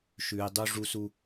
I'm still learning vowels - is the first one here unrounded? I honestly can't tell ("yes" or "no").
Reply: no